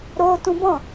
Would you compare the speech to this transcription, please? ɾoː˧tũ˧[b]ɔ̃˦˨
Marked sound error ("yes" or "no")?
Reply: no